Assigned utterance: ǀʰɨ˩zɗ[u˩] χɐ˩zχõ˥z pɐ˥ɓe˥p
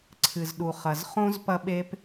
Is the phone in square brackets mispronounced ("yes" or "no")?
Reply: no